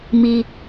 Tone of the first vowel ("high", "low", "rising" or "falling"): high